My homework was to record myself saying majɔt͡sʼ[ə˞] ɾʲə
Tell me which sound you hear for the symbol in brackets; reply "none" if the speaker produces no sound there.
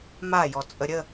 ə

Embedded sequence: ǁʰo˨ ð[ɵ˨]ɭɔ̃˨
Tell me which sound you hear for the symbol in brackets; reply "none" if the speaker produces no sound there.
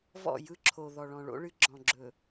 ɔ˨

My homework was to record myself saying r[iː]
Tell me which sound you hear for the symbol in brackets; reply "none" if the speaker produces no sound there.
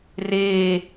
eː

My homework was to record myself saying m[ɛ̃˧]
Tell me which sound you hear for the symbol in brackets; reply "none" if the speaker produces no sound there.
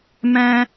ɛ̃˧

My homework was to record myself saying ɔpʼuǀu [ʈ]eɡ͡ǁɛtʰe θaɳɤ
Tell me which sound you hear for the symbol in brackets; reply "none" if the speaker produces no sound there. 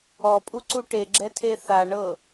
ʈ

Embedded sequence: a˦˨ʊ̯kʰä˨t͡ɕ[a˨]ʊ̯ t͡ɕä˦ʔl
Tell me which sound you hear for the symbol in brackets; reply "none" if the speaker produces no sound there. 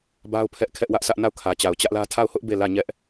a˨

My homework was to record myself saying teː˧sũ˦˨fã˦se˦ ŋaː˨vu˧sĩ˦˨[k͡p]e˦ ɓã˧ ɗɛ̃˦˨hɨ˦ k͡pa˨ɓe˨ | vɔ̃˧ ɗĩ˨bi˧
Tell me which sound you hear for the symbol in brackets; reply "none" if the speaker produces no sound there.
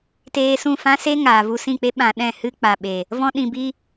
k͡p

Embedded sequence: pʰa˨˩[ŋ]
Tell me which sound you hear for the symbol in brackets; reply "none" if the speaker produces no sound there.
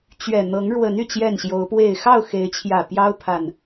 n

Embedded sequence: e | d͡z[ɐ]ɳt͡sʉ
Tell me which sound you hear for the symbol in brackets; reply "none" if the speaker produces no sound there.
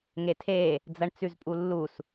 ɐ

